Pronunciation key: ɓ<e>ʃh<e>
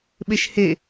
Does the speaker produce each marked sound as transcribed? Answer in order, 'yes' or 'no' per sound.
yes, yes

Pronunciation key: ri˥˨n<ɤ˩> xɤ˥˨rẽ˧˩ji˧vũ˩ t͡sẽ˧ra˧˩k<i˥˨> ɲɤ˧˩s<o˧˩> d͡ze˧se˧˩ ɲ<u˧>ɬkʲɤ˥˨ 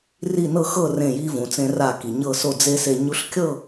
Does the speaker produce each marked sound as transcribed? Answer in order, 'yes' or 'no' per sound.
no, no, yes, yes

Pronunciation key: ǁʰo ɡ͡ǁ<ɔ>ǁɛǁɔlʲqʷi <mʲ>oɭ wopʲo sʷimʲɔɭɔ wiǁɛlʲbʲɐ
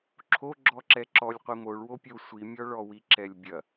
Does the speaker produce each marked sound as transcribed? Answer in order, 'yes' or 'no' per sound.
yes, no

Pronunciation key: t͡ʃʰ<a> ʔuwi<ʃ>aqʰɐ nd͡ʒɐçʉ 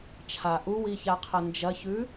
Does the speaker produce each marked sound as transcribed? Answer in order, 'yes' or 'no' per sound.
yes, no

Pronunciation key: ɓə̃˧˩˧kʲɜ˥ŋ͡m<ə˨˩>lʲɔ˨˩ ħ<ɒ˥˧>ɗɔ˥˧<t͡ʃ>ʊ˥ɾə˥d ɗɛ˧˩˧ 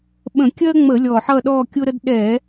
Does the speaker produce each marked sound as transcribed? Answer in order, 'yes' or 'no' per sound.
no, no, no

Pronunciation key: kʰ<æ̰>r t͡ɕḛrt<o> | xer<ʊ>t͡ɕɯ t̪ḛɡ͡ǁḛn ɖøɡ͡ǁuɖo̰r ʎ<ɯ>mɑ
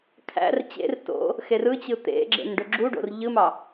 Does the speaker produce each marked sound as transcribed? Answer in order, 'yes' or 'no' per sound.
yes, no, no, yes

